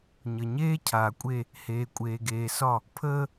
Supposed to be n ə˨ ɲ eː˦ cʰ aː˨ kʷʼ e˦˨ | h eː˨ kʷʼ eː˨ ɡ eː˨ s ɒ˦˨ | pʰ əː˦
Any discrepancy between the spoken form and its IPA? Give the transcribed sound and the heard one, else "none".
n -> ɲ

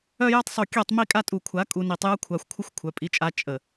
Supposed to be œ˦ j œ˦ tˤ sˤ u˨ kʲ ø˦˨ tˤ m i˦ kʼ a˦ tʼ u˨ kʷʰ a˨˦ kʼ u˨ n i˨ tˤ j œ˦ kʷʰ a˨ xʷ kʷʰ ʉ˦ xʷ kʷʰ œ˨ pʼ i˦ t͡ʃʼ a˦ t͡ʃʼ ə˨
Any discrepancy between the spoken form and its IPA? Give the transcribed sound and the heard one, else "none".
ʉ˦ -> ə˦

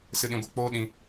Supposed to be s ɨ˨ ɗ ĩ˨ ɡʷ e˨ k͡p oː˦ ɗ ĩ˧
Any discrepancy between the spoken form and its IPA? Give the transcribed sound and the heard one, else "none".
none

